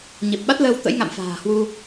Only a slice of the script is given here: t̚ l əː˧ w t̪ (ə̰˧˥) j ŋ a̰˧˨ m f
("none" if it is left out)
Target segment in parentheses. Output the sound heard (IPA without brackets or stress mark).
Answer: ə̰˧˥